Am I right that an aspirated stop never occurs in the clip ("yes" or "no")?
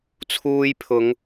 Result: no